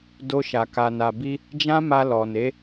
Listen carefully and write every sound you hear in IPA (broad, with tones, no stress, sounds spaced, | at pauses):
d o˧ ʃ a˨ k a˨ n a˨ b i˧ | d͡ʒ ã˦ m a˧ l ɔ˨ n e˨˦